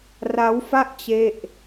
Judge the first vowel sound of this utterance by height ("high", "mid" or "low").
low